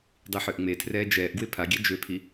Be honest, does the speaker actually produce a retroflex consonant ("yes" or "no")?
no